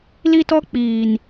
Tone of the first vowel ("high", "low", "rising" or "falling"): high